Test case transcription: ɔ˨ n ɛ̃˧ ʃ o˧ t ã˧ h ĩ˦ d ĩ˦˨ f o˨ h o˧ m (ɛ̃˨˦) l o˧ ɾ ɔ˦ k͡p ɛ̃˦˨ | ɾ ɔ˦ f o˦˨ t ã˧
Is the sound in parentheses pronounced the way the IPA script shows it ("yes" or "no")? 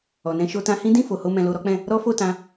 no